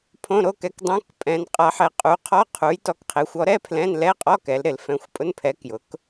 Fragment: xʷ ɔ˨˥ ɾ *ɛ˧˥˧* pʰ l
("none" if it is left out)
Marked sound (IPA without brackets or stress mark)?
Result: ɛ˧˥˧